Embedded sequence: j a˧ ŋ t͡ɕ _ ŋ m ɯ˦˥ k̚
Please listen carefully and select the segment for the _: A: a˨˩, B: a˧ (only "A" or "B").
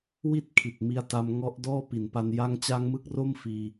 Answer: B